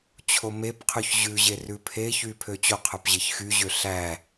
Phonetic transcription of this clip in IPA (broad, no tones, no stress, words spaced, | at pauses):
t͡ɕʰomepqʰʉç ʑʉʑe rʉpʰeçy pʰøt͡ɕoqʰœp ʑeçxyʑø ɬæ